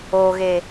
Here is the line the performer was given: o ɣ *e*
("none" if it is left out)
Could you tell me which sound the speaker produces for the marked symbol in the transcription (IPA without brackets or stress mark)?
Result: e